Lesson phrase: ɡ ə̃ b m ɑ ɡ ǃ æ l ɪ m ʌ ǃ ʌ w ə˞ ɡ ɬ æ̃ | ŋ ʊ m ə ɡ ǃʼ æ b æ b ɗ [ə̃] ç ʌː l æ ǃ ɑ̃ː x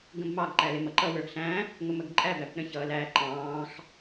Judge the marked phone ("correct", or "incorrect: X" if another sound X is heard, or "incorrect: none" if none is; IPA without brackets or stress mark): correct